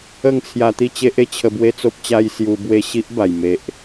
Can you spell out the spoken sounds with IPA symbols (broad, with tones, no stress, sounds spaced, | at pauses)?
ə˥˧ ŋ t͡sʰ j a˧ t̪ i˥˧ t͡ɕ e˦ ʔ e˥˧ t͡ɕʰ ə˧ b w e˦ t͡s o˦ p̚ t͡ɕ a˦ j s j u˧ b w e˥˧ ɕ i˦ ʔ b a˨˩ j m e˨ ʔ